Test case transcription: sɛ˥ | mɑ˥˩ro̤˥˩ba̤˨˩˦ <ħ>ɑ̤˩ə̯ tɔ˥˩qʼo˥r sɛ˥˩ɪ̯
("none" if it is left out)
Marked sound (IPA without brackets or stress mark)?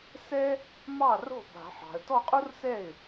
ħ